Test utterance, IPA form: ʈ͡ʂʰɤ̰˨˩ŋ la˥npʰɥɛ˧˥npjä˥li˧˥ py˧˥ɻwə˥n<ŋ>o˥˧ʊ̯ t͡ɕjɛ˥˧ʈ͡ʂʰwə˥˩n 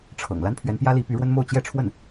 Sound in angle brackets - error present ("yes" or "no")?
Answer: yes